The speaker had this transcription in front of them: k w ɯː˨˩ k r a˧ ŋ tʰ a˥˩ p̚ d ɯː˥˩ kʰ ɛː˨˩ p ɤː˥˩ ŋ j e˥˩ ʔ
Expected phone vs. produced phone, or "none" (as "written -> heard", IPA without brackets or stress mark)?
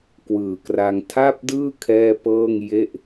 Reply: ɛː˨˩ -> ɛː˥˩